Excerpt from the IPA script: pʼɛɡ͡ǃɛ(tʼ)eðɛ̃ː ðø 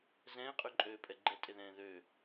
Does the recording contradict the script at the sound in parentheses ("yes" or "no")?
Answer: no